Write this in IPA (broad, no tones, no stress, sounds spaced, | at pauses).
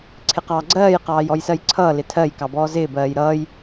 ǀʰ ɪ q ɑː ɡ͡ǀ ɜː j q ɑː j ɔ j s ɜ j ǀʰ ʌː l ɪ tʰ ɜ j k ɑ b ɔː z ɪː b ɜː j ɾ ʌː j